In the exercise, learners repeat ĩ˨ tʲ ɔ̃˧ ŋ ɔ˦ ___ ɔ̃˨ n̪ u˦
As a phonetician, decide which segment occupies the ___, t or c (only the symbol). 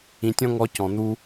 c